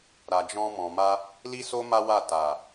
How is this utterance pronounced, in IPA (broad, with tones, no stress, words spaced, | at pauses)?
ɾa˨d͡ʒɔ̃˧ mɔ̃˨ma˧ | li˦so˦ ma˦wa˦˨ ta˨